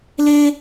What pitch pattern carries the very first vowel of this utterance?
high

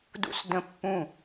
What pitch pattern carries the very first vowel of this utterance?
high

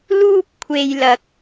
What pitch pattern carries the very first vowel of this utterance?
high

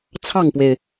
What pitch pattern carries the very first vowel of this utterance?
falling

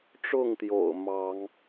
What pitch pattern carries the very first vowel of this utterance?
falling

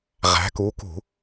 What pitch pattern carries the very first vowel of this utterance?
rising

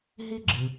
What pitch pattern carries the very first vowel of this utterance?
high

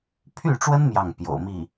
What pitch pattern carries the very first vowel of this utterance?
falling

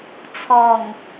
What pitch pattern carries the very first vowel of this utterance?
low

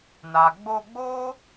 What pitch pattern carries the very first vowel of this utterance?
low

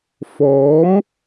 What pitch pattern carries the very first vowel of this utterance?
rising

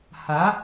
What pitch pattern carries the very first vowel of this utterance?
rising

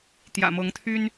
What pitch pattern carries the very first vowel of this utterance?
low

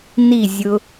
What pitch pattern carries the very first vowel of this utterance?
falling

